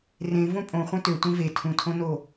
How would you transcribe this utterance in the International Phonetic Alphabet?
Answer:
r ẽ v õ pʼ õ χʷ œ̃ t ø tʷ ẽ v e tʰ ũ tʰ õ n o

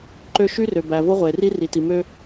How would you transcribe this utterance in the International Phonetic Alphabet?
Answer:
ǃ ø˦ ʃ y˦ r ø˨ b æ˨ v o˦ ʁʷ eː˨ r i˦ r i˨ t i˨ m ø˦

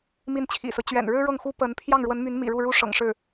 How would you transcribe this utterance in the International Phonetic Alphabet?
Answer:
m i˥˩ n t͡ɕʰ ḭ˨˩ s ɹ̩˦ t͡ɕ ɥ ɛ̰˨˩ n ɻ ɻ̩˥ ɻ ɤ˥˩ ŋ x u˥ p ə˧˥ n pʰ j ɑ˥˩ ŋ ɻ w ə˧˥ n m y˧˥ n m ḭ˨˩ ɻ u˥˩ ɻ u˥ ʂ ɤ̰˨˩ ŋ ʂ ɻ̩˥˩

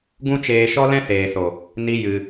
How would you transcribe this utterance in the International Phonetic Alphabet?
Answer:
ɡ ũ˦ t͡ʃ eː˧ ʃ ɔ˦ l ɛ̃˦ s eː˨ s o˨ | n i˦ j ɨ˧

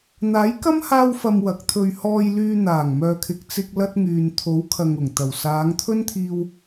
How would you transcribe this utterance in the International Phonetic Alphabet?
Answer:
n̪ aː˨˥ j k ɐ˥ m h aː˧ w f ɐ˨ m w ɐ˨˥ k̚ t̪ʰ ɵ˧ ɥ h ɔː˧ j l yː˧ n̪ aː˨˩ ŋ m œː˨ kʰ ɪ˨ k̚ t͡s ɪ˧ k̚ l ɐ˥ t̚ ŋ yː˨ n t̪ʰ o˨˥ w kʰ ɐ˨ ŋ ʊ˨˩ ŋ t̪ ɐ˨˩ w s aː˨˧ ŋ t̪ʰ ɵ˥ n t̪ʰ iː˧ w

